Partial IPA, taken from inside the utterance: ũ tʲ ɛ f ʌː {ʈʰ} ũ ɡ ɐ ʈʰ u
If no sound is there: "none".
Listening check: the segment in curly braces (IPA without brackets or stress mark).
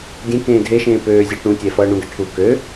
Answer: ɳ